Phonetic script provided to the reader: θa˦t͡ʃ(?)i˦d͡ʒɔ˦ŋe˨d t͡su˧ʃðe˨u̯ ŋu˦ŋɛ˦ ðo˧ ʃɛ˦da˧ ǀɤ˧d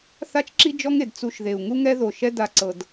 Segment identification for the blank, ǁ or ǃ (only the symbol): ǁ